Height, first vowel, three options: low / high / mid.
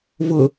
high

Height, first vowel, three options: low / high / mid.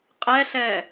mid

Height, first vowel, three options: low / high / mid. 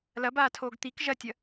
low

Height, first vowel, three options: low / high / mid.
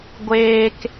mid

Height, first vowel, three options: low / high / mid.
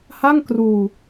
low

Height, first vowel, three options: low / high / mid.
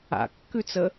low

